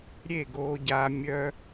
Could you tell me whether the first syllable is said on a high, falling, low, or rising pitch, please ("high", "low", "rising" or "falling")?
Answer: falling